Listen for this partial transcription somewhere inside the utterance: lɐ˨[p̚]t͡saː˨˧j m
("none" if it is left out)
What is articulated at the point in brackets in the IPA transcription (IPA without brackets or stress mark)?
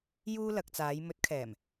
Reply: k̚